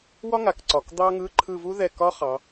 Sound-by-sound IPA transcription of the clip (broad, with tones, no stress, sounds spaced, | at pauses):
w ɒ˥ ŋ a˩˧ k ǀ ɒ˩˧ k d̪ ɑ˥ ŋ ɯ˧˥˧ ǃʰ ɯ˦˨ v u˥ ð ɛ˦˨ k ɒ˥ χ ɑ˩˧